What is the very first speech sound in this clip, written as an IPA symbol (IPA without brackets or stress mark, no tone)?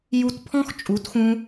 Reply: j